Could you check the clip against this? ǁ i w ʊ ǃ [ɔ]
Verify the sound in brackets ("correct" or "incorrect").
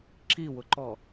correct